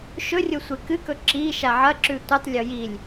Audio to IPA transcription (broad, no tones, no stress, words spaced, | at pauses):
ʃɵrʲo sʷekɨkɵ ǁiʃa ʕɐǁʉ tʷɨtˤlʲo jilʲ